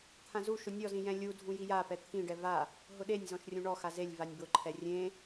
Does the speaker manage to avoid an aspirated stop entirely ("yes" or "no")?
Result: no